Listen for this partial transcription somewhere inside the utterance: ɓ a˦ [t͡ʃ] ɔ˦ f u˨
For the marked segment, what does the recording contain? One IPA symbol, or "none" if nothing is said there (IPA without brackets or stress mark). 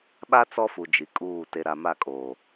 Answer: t͡s